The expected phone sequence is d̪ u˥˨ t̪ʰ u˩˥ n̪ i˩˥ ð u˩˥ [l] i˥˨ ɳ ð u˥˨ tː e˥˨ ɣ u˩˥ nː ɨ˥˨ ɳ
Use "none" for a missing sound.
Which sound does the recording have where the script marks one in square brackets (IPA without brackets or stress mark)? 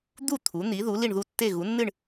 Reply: l